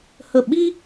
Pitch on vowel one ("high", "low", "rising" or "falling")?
falling